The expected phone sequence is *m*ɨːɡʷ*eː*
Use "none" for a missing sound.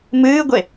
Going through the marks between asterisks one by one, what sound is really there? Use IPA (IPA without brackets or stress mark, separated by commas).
m, e